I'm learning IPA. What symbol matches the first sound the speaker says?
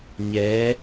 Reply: ɲ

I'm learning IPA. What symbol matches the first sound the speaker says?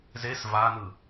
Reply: z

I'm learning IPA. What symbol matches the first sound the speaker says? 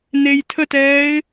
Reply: n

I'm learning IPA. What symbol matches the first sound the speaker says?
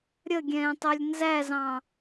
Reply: ɾʲ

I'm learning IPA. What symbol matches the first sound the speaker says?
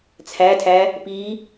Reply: t͡sʰ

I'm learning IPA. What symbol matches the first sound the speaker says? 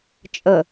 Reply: t͡ʃʼ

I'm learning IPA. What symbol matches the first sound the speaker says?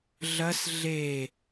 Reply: ɮ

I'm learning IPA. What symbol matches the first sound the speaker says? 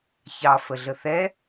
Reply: ç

